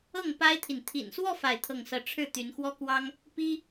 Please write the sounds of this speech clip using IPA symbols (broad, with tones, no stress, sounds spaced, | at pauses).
ɤ˥˩ ŋ p a˥ ɪ̯ t̪ʰ i˨ n t̪ʰ ḭ˨˩ n s w ɔ˥˧ f a˥˧ ɪ̯ t̪ʰ ɤ˥˧ ŋ s ɤ˥˧ ʈ͡ʂʰ ɻ̩˥˩ t̪ y˧˥ n x w ɔ˥ k w ɑ˥ ŋ | p i˥